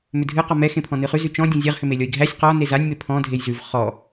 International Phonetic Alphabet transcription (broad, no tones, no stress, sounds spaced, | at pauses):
m ʏ dʱ ɨ q ɔ m ɛ x ẽ pʰ ɔ̃ n ɨ χ ʉ z ʉ t͡ʃ ɔ̃ dʲ ɔ̃ zʲ ɛ ʁ h ʏ m e lʲ ɔ i̯ ɡʱ æ sʲ q ɔ n e z a nʲ m e pʰ ɔ̃ dʱ e j z ʉ v χ ɔ